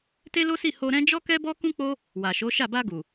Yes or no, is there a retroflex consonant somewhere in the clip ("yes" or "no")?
no